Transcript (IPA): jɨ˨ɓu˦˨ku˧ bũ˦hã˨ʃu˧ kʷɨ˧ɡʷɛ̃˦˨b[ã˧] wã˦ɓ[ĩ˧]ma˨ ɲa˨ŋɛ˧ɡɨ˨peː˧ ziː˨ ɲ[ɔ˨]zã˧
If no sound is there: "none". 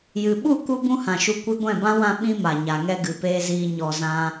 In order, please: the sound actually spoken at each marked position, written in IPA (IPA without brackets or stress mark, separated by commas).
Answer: ã˦, ĩ˦, ɔ˨